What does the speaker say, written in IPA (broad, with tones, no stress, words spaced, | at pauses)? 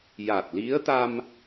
ja˨˩t̚li˧˥ə̯t̪a˧m